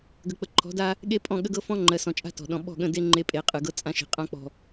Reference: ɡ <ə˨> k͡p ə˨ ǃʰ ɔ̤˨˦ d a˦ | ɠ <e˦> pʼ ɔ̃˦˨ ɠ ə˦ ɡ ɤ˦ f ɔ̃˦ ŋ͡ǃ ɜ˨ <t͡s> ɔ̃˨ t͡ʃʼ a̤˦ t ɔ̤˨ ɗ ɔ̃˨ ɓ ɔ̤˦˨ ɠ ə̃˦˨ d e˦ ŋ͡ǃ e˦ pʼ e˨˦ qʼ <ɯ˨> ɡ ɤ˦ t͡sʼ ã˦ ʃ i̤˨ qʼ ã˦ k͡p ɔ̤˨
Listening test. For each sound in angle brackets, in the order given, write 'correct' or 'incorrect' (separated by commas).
correct, correct, incorrect, correct